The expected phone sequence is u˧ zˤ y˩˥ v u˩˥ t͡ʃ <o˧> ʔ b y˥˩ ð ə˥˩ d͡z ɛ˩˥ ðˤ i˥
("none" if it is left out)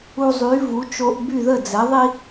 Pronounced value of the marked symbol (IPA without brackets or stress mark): o˧